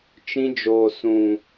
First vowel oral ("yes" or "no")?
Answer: no